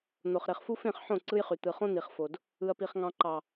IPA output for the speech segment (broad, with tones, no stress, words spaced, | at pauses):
n̪o˨χɾe˨χfu˦ fẽ˦˨χħõ˦˨ ǀɯ˦jχy˨ t̪ɯ˨ χõ˦n̪i˨χfo˨d | ɯ˨ɐ̯pi˨χŋɑ̃˨ǃɑ˨